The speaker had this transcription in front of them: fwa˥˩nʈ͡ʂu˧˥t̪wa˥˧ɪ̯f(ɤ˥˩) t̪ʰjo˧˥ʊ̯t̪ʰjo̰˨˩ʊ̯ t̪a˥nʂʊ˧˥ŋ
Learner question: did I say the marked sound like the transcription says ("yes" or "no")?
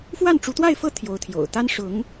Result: yes